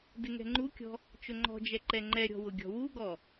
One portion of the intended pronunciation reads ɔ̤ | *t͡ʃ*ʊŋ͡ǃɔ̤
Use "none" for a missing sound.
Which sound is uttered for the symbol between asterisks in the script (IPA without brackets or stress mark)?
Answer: t͡ʃ